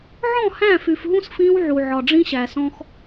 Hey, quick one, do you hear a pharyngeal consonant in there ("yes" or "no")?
yes